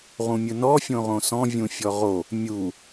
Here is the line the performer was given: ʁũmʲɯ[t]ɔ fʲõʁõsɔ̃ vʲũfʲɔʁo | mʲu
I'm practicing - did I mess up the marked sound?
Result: yes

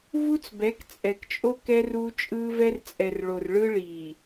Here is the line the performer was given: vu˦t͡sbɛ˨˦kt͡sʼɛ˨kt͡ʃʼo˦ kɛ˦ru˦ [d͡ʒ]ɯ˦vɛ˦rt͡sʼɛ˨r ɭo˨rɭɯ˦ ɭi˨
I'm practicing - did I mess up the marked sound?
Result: yes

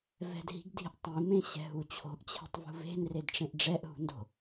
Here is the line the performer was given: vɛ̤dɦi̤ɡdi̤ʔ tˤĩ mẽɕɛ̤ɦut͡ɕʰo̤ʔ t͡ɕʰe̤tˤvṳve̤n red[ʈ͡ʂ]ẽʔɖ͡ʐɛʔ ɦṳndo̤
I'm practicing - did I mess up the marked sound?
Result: no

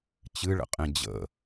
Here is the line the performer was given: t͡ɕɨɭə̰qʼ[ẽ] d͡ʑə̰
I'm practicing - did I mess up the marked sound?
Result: no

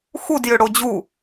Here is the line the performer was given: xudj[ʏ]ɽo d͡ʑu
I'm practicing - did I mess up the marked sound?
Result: no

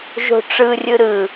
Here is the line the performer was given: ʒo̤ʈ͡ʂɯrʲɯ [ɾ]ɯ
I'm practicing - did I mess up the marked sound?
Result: no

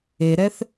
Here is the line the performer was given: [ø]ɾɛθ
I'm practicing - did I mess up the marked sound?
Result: yes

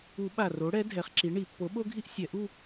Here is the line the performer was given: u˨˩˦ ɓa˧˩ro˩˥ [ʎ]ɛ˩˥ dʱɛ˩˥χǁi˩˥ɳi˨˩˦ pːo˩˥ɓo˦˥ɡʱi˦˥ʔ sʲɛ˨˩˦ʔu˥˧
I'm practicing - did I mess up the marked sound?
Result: yes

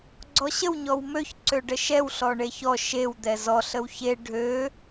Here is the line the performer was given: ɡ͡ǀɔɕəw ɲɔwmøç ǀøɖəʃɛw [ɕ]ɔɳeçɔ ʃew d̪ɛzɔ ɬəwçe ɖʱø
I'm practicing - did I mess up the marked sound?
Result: yes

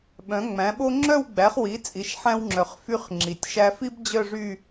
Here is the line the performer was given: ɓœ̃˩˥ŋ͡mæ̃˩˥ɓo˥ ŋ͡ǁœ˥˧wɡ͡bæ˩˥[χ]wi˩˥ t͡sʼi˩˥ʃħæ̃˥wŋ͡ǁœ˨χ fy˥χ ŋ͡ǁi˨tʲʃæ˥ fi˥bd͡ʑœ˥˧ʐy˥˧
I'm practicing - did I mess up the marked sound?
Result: no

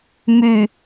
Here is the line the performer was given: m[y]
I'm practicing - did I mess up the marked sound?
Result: no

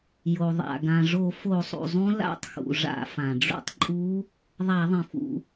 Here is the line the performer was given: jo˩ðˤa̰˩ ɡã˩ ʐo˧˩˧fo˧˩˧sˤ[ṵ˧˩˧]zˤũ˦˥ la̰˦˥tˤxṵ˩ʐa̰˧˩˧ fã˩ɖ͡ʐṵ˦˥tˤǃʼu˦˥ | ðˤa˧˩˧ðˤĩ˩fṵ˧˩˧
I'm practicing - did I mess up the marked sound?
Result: yes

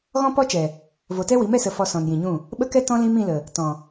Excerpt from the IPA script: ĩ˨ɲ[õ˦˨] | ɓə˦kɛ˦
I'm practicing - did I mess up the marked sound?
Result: yes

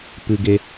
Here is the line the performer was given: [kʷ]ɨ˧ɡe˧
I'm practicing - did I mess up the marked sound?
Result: yes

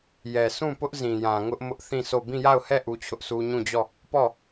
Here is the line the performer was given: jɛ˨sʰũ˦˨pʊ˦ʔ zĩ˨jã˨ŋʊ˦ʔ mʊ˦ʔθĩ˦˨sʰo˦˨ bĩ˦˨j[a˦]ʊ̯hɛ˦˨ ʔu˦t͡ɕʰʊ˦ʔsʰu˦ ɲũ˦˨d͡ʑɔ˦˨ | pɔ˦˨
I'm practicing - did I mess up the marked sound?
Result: yes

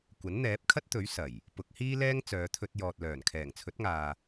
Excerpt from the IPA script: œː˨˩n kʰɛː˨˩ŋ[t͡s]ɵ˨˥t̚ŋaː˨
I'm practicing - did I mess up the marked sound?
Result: yes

